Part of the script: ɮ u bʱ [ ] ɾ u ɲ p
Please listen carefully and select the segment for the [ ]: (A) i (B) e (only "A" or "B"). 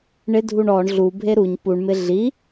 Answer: B